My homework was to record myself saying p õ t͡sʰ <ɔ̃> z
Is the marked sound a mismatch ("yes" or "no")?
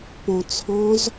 no